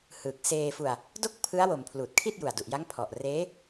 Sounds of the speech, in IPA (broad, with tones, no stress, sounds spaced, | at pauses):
h ɯː˨˩ k̚ s eː˧ f u˧ a̯ | d o˥˩ k̚ pʰ ɯ˦˥ a̯ w o˨˩ m pʰ l uː˨˩ t̚ kʰ i˥˩ t̚ j u˨˩ a̯ d u˨˩ ʔ j a˦˥ ŋ pʰ ɔ˨˩ ʔ r eː˦˥